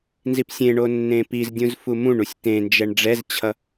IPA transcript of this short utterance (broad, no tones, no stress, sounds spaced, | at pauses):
n z i p sʲ ẽ ɳ o nː ẽ p i z dʲ ũ z f u m ũ ɳ u sʲ t ẽ n d͡ʒ ɛ ɳ ɖ͡ʐ ɛ z t͡ɕʰ ʌ